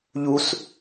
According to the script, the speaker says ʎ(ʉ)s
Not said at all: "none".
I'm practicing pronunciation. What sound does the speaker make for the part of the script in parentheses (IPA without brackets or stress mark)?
u